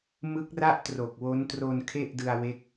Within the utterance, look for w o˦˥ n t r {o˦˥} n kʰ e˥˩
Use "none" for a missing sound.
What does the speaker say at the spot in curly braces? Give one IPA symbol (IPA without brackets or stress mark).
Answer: o˧